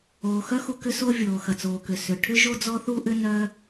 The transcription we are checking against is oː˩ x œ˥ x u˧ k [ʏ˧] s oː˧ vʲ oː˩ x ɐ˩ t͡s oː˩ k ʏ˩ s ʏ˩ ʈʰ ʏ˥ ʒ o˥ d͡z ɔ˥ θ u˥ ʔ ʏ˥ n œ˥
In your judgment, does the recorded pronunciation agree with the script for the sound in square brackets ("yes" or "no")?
yes